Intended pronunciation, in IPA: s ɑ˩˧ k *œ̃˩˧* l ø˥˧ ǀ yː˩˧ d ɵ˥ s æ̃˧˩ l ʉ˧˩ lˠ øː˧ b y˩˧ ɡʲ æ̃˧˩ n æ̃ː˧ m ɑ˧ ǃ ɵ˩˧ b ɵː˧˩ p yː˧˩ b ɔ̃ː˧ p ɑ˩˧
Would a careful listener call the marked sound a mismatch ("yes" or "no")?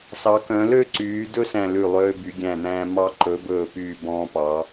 no